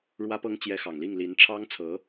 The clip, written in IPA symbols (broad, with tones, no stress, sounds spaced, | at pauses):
ɻ w ä˥ p ɤ˥ ŋ t͡ɕ j ɛ˧˥ x ɑ˨˩ ŋ l i˥˩ ŋ l i˧˥ n ʈ͡ʂʰ ɑ˥ ŋ t͡sʰ ɤ˧˥